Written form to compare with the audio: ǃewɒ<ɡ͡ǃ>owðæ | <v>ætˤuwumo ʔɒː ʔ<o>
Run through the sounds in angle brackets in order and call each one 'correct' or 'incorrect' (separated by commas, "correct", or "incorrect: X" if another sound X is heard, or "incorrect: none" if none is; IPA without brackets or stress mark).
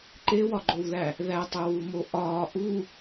correct, incorrect: ð, incorrect: u